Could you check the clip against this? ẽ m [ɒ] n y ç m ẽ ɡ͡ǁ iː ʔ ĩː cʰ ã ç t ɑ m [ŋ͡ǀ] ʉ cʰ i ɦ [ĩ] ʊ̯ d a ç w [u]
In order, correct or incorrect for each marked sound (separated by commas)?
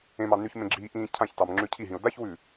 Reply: incorrect, incorrect, correct, incorrect